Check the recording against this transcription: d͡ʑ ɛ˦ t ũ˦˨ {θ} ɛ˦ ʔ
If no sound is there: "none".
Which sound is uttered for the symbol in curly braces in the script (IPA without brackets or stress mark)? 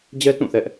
θ